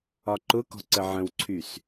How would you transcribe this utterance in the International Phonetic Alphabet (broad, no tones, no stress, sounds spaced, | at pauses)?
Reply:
ɒ ǃ ʊ k ɔ̤ ǀ ə ʕ ə̃ w ǀʰ y s